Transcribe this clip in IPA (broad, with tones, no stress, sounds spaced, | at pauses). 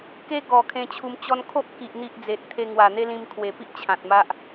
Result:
k e˦ ɡ ɔ˨˩ kʰ ẽ˧ t͡ɕʰ u˧ m t͡ɕ ɔ˦ n kʰ o˦ ʔ k i˨ ʔ n̪ i˦ ʔ d͡z e˨ t̚ t̪ʰ e˧ ŋ w a˨˩ n̪ e˦ l ĩ˧ m kʰ w e˨˩ p i˦ ʔ t͡ɕʰ ã˨ t̚ m a˦ ʔ